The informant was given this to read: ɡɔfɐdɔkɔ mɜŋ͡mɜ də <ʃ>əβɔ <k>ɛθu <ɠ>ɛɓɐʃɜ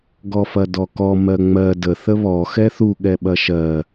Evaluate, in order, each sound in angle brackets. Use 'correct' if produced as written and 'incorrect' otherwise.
incorrect: θ, incorrect: x, correct

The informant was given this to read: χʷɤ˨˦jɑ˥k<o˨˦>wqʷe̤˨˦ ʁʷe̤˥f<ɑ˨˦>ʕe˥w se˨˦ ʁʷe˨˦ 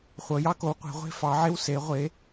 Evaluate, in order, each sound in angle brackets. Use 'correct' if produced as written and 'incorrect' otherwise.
correct, correct

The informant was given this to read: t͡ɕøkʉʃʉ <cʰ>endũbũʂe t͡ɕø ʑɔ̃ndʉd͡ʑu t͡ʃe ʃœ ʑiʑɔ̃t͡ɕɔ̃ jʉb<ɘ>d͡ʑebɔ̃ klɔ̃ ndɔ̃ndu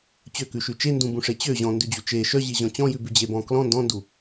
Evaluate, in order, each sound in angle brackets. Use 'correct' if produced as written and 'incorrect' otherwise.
incorrect: t͡ʃ, incorrect: ʉ

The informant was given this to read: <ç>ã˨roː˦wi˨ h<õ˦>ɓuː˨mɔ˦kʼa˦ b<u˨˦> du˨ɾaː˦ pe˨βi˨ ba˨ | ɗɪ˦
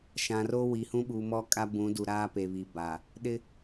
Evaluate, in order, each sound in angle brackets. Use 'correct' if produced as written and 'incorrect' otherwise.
incorrect: ʃ, incorrect: ũ˦, incorrect: ũ˨˦

